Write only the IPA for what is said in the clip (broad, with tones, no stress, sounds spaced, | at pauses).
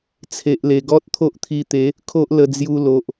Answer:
t͡sʰ e˨ ʔ l e˨˩ ɡ ɔ˦ t̚ t̪ʰ o˦ ʔ t̪ʰ i˧ t̪ e˨˦ | kʰ o˦ ʔ l ə˧ d͡z j u˧ l o˨ ʔ